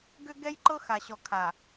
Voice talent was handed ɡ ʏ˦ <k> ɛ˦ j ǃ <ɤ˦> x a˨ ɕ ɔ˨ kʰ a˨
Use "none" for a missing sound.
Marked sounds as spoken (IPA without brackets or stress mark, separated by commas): ɡ, ɤ˦